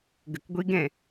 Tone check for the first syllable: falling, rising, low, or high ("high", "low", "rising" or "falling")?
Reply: low